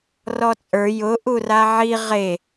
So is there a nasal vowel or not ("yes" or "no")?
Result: no